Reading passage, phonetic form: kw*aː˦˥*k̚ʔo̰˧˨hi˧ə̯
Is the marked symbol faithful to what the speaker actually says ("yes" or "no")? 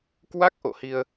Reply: no